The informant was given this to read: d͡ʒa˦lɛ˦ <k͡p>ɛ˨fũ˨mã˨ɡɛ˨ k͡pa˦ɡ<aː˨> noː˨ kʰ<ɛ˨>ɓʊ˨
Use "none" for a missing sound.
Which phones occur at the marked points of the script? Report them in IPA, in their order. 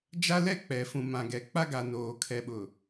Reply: k͡p, a˨, ɛ˨

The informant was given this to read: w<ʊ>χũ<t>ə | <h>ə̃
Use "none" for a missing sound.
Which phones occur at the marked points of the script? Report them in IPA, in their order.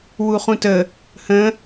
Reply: u, t, h

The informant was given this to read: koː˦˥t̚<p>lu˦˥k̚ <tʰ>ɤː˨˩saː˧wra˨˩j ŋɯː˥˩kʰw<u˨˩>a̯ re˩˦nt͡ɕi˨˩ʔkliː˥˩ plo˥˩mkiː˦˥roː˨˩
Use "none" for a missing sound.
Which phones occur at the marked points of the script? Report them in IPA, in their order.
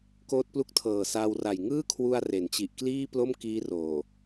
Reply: p, tʰ, u˧

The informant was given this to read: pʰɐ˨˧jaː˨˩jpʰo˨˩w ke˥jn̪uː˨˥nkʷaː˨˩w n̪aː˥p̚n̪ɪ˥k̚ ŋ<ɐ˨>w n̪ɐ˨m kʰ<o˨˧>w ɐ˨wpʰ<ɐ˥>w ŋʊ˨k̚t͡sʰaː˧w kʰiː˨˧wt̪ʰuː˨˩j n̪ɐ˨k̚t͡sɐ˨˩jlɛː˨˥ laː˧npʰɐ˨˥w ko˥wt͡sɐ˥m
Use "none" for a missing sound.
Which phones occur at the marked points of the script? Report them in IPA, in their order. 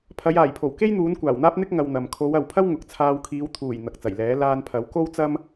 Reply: ɐ˨, o˨˧, ɐ˥

